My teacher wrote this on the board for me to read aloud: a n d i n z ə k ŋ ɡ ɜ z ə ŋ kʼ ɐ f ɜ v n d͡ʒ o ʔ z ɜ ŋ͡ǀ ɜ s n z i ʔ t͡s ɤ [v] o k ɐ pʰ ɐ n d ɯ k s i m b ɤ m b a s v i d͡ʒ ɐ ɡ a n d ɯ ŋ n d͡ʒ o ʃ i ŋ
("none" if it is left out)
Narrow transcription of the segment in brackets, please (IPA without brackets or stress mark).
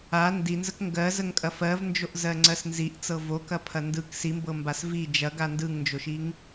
v